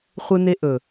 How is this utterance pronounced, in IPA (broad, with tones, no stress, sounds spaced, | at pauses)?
χʷ ɨ˦ n̪ e˦ ʔ ɵ˨